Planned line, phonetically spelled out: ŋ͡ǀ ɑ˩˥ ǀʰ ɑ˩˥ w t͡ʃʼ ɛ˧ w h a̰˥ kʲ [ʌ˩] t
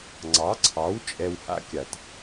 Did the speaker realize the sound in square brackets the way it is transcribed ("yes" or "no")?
no